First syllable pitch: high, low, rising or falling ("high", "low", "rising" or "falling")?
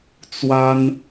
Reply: high